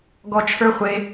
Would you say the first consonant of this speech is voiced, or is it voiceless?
voiced